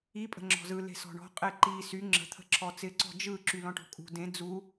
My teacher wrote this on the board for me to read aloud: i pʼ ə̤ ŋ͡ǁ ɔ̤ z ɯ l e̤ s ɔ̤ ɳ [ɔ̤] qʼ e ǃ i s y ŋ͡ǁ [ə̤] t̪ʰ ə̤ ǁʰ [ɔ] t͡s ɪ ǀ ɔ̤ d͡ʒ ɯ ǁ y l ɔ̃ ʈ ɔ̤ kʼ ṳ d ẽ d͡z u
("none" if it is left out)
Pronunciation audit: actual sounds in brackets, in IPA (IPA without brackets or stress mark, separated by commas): ɔ̤, ə̤, ɔ